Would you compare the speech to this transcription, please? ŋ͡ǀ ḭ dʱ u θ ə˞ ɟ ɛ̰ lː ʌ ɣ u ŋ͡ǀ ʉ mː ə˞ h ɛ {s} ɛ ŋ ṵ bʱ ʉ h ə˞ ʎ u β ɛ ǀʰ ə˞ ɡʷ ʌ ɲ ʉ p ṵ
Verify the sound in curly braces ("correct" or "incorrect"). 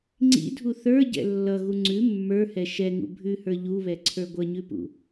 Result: incorrect